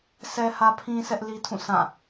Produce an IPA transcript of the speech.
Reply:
s ɛ˦ h ä˦ pʰ ĩ˦ sʰ ɛ˦ ʔ l i˦ tʰ ũ˦˨ sʰ ã˦˨

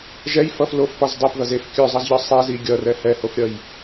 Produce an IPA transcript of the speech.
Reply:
ʒ ɛ j f ʌ f l o f p ɒ z dˤ e p ð ʌ z e f kʲ œ zˤ ʌ z ʎ ɒ sˤ e z i ɡʲ ʌ r ɛ h ɛ h o f ɾʲ ʌ j

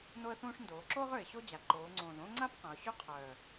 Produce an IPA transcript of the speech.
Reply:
n o˥ ə̯ θ ũː˥ ʂ n d oː˩˧ ǁ oː˥ ʁ ø˨˩ ɪ̯ ɕ o˥ d͡ʑ a˩˧ ǃ oː˩˧ ŋ͡ǀ õː˨˩ z õː˥ ŋ͡ǀ a˥ p q ɐ̃˩˧ ʊ̯ ɕ ø˥ qʰ œː˨˩

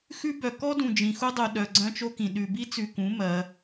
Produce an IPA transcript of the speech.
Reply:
x ʉ˦ b œ˨ k ɔ˦ d ũ˨ d͡ʒ ĩ˨ x u˦ dˤ u˨ ɗ œ˨ ɡ͡ǀ œ̃˦ t͡ʃ o˦ k ĩ˨ ɗ ʉ˨ b i˦ t͡s ʉ˨ k ũ˨˦ m ɜ˨˦

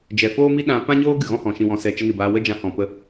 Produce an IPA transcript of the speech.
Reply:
d͡ʒ ɛ˨ f oː˦ m i˦ ɗ ã˧ p ã˦ ɲ oː˦ ɡ ɨ˨ ɣ ɔ̃˦ h ɔ̃˨ ʃ ĩ˨ w ɔ̃˨ s ɛ˨ t͡ʃ ə˧ n ɨ˨ b aː˧ w ə˦ d͡ʒ ã˧ h ɔ̃˨ p ə˦

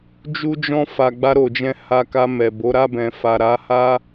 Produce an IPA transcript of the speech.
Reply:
d͡ʒ u˧ d͡ʒ ɔ̃˧ f a˨ ɡ͡b a˧ ɾ o˨ d͡ʒ ɛ̃˧ h a˧ k a˧ m ɛ˨ b o˨˦ ɾ a˦˨ b ɛ̃˨ f a˨ ɾ a˨˦ h a˦

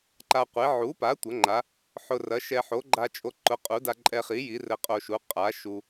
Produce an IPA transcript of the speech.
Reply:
ǃ a˧ qʷ e˩˥ ʕ u˩˥ p a˩˥ tʷ ɐ˩˥ ŋ͡ǃ a˩˥ | ħ ʊ˧ r ɐ˩˥ ʃ ɛ˧ ħ o˩˥ ɡ͡ǃ a˧ t͡ʃʼ o˧ ǃ ʊ˩˥ qʼ u˩˥ d a˧ ǃʼ ɛ˧ χ i˩˥ j i˩˥ r ɘ˧ qʼ o˧ ʃ u˩˥ qʼ a˩˥ ʃ u˧

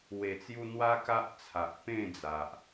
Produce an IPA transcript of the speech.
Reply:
w e˨˩ t͡s j u˧ n̪ w a˦ k a˦ ʔ t͡sʰ a˨ ʔ p ẽ˥˧ d͡z a˨ ʔ

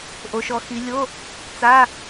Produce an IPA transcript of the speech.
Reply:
ʔ o˩˧ ʃ ɔ˩˧ x i˩˧ lʲ o˧˥˧ | t͡s a˧˥˧

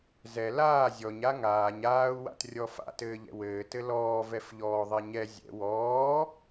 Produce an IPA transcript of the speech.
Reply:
z ɛ l aː zʲ ɔ ɲ a ŋ aː ɲ aː u̯ w a̰ t rʲ ɔ f a̰ t ɘː ʎ ɛ̰ w ɘː t ɘ l ɔː v ɛ f ʎ ɔː ðˤ ɛ ɲ ɛ zʲ ɛ̰ w ɔː

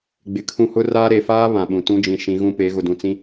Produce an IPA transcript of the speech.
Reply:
ɡ͡b ɪ˨ kʰ ũ˦ h ʊ˦ r aː˦ ɾ e˨ f aː˦ β ã˨ ɓ ũ˨ t ũ˦ d͡ʒ ĩ˨ ʃ ĩ˨˦ ɣ ũ˦ p e˨˦ ɣ ʊ˨ d ũ˨ t͡s ĩ˦

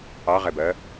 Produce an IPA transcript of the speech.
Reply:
ɑ ʁ ɛ b ɜ

